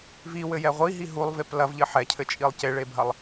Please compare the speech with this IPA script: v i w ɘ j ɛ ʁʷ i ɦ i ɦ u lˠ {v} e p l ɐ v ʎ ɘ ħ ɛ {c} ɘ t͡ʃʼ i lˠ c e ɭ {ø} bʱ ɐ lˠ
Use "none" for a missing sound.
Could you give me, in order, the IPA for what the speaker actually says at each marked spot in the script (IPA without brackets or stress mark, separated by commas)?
v, cʰ, e